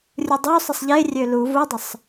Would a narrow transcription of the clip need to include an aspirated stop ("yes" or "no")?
no